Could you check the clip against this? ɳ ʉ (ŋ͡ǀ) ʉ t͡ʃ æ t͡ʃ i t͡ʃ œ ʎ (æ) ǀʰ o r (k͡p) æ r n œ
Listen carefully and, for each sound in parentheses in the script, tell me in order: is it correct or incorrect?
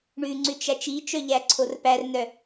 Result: correct, correct, incorrect: p

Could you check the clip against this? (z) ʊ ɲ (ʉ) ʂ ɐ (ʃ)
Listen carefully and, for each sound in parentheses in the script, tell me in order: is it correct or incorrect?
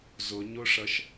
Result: correct, incorrect: ʊ, correct

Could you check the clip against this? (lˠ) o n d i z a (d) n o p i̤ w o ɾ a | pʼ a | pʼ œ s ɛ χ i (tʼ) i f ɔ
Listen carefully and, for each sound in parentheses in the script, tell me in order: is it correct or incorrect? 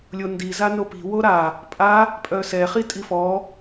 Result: incorrect: lʲ, incorrect: none, correct

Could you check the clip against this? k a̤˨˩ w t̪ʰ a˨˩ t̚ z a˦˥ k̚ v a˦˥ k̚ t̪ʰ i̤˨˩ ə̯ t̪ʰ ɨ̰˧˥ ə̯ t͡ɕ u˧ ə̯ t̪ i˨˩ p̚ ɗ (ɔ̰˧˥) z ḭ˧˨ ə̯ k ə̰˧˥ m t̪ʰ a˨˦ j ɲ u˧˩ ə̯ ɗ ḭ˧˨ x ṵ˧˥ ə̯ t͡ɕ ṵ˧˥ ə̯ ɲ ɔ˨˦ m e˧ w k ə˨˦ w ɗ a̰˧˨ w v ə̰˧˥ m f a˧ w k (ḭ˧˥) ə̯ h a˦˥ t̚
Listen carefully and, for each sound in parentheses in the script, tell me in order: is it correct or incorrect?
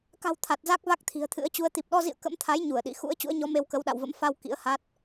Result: incorrect: ɔ˧, correct

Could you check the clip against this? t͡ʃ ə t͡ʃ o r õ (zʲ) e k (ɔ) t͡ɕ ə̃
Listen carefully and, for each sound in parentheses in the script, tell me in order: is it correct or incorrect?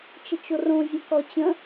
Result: correct, correct

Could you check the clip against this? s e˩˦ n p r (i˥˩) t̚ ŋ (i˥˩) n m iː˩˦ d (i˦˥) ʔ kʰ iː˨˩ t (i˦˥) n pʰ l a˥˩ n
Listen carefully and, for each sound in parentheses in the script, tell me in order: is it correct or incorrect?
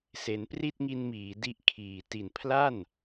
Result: correct, incorrect: i˧, correct, incorrect: i˨˩

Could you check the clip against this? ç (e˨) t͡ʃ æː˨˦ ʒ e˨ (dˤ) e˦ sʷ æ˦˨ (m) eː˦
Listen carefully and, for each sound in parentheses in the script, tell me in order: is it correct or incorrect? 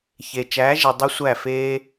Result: correct, correct, incorrect: f

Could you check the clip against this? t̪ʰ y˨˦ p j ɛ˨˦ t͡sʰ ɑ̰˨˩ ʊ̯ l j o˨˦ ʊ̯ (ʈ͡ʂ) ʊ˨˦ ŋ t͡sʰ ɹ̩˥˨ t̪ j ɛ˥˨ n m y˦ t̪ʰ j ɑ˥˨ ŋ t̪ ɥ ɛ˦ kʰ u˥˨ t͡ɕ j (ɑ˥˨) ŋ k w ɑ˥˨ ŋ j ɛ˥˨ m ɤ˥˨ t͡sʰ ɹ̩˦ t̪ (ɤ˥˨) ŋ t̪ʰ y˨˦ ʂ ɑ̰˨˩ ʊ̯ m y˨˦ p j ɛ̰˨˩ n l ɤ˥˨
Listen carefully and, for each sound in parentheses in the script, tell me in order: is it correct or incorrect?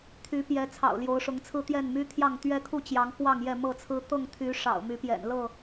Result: incorrect: ʂ, incorrect: ɑ˨˦, correct

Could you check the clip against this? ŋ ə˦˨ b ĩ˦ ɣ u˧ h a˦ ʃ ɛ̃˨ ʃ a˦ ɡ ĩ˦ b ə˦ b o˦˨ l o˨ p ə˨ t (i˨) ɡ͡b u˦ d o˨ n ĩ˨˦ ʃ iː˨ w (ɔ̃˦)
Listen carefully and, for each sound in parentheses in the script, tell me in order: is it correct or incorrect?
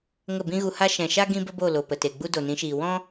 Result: incorrect: e˨, correct

